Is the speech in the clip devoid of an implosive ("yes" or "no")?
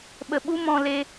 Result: no